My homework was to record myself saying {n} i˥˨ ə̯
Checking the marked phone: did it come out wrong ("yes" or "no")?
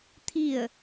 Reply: yes